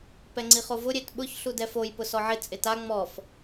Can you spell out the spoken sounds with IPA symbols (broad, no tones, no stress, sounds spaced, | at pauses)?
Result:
p ɛ ŋ͡ǀ i χ o v ʊ ɾʲ e t ɓ ʊ ç ɬ u d ɛ f o j p ʊ s ɔ ʕ ɪ t͡sʼ ɪ t a ŋ͡m ɔ f